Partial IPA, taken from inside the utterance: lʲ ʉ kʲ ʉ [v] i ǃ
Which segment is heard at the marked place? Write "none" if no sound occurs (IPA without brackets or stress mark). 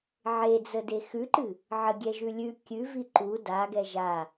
v